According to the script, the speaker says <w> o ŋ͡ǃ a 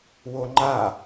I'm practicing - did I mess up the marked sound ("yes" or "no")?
no